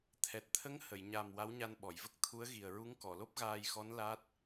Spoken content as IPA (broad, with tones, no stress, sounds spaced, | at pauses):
t̪ʰ ɛ˨˩ t̚ t̪ʰ ə˧˥ ŋ h ə˨˩˨ j ɲ a˨˩ m w a˧˥ w ɲ a˧ n ɓ ɔ˨˩˨ j v ə˦˥ k̚ t̪ʰ u˧˥ ə̯ ɣ i˨˩ ə̯ ɹ u˧˥ ŋ k ɔ˨˩˨ l o˦˥ p̚ ɣ aː˧ j x ɔ˧˥ n l a˦˥ t̚